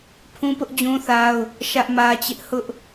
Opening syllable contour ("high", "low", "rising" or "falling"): high